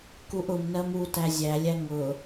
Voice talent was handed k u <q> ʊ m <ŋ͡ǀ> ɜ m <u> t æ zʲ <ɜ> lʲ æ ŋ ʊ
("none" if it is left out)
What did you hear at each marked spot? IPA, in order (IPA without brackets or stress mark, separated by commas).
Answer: ʔ, n, u, æ